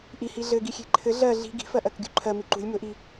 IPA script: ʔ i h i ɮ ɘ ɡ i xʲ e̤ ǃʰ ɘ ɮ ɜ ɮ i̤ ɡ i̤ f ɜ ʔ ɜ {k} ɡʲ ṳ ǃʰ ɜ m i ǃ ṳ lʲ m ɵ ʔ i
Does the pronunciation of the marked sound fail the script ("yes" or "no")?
no